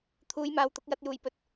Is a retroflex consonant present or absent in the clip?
absent